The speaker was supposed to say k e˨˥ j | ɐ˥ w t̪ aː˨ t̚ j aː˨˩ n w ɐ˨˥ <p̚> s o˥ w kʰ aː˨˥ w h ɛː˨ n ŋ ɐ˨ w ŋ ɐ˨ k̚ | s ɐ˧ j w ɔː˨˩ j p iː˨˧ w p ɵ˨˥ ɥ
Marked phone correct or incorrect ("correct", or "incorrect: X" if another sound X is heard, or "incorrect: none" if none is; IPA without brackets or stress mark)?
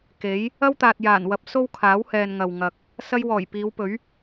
correct